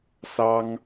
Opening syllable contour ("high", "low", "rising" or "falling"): high